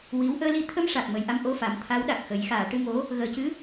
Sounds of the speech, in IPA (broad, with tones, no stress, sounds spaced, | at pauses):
w i˧˥ w ʔ əː˧ l i˧ t̪ʰ ə˧ m ʂ a˨˩ k̚ m ə˨˩ j ʔ a˧ m ʔ o˧ f a˨˩˦ m t̪ʰ a˧˥ w ɗ a˨˩ k̚ x ə˨˩˦ j x aː˨˩˨ ʈ ɨ˧ ŋ o˧˥ | ɣ əː˨˩˦ c ɨ˧˥